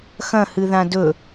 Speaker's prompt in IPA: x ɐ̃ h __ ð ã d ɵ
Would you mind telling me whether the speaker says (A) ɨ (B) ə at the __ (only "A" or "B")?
A